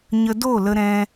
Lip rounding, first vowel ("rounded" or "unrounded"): unrounded